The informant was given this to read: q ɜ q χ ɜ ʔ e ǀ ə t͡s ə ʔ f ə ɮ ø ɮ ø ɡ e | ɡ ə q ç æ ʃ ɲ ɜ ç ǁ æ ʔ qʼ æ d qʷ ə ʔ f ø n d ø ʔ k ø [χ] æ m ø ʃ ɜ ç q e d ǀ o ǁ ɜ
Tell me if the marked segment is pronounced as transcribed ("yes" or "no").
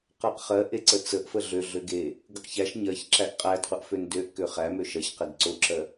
yes